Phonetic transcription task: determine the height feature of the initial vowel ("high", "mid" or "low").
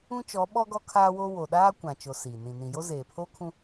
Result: high